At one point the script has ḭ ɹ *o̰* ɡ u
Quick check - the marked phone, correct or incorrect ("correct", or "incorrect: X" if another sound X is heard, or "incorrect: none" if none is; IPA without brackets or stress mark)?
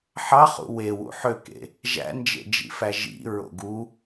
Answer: correct